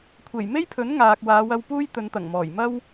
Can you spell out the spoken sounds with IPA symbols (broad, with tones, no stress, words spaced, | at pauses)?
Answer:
kʷʰe˨˩j me˥jpʰɵ˨˥n ŋaː˨k̚ waː˨˧wɐ˧w puː˥j t̪ɵ˨˧nt̪ɐ˨˩ŋmɔː˨˩j mɐ˥w